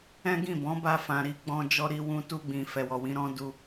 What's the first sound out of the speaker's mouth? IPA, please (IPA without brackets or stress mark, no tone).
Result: ɛ̃